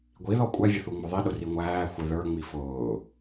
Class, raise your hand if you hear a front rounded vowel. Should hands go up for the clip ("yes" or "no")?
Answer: no